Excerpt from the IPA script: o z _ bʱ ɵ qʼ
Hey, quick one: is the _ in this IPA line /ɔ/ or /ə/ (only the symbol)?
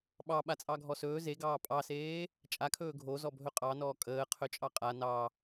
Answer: ɔ